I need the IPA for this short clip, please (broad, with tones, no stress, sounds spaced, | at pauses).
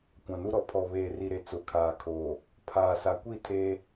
kʷ ã˨ n u˦ ɾ ɔ˨ pʰ ɔ˨ β eː˨ r i˨ ɾ e˨ t͡s ʊ˨˦ kʰ aː˨ kʰ oː˨ | pʰ aː˨ s a˨ kʷ i˦˨ tʰ eː˦